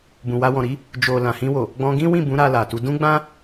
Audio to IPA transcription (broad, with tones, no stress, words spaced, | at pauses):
bũ˨wa˧wɔ̃˨ɾi˨˦ | d͡ʒo˨ lã˨hĩ˧wo˨ | ɡ͡bɔ̃˧ɡĩ˦wĩ˦˨ bũ˨˦ ɾa˧la˨tu˨˦ dũ˦ɡ͡bã˦